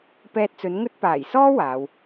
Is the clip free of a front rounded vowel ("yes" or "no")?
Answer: yes